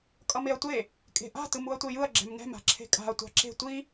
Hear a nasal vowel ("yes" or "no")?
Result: no